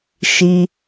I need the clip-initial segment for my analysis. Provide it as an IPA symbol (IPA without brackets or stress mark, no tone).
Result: ʃ